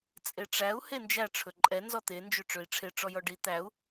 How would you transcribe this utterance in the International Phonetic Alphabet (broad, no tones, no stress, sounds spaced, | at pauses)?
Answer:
t͡sʼ e ʈ͡ʂ æ u̯ h e n d͡ʒ æ ʈ͡ʂʰ ɵ ǃʼ ɛ n z ɔ t̪ e n d͡ʒ ø ʈ͡ʂ ø i̯ ʈ͡ʂʰ e ʈ͡ʂ ɔ j ɔ ɖ i t̪ æ u̯